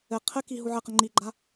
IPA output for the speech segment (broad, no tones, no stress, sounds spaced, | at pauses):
ɘ qʰ ɘ k i ɦ u ʕ ɘ q ə ŋ͡ǃ i ɡ͡ǃ a